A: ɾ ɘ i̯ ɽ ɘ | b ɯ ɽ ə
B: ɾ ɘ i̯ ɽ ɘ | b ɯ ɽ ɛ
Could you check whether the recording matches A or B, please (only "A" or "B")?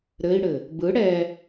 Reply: B